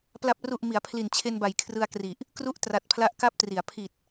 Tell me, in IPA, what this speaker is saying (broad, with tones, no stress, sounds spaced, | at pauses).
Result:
p l a˨˩ p̚ r u˨˩ ʔ m i˩˦ a̯ pʰ l i˨˩ n t͡ɕʰ e˧ n b a˨˩ j kʰ r ɯ˧ a̯ k r i˨˩ ʔ | k r u˥˩ ʔ t r a˨˩ t̚ pʰ l a˦˥ ʔ k a˦˥ p̚ t r i˩˦ a̯ pʰ i˨˩ t̚